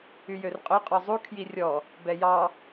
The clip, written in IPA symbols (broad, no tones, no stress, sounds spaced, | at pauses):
y j ø r qʼ ø qʼ ɔ zˤ u kʰ j i rʲ ɔ | b ɛ j ɑ